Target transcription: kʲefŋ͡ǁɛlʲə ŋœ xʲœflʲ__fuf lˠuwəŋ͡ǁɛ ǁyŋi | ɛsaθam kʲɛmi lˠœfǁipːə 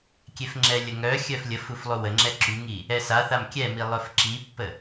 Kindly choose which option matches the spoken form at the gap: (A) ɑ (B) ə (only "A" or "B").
B